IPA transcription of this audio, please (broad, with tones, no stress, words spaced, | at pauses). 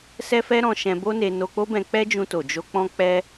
sɛ˦fɛ˦ɾɔ̃˧ʃɛ̃˧ bo˦ne˧ no˧k͡po˦bɛ̃˧ k͡pɛ˦d͡ʒũ˧to˨ d͡ʒo˧k͡pɔ̃˦k͡pɛ˦